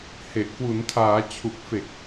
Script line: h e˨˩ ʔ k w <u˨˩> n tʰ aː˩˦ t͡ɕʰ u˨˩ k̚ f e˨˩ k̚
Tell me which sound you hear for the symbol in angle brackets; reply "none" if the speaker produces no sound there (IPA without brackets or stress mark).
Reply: u˩˦